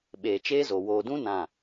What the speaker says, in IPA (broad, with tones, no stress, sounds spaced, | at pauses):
ɓ eː˨ t͡ʃ eː˦ z o˨ w oː˨ d ũ˦ n ã˦˨